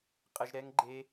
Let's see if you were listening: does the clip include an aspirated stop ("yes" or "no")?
no